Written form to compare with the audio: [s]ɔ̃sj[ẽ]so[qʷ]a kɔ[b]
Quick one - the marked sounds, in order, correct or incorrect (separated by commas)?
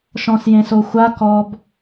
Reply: incorrect, correct, incorrect, correct